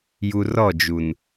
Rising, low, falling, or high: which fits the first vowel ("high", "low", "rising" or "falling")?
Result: low